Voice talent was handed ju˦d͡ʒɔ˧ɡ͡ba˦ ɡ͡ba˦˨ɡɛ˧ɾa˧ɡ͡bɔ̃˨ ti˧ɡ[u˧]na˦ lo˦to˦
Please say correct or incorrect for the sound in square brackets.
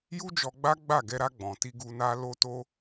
correct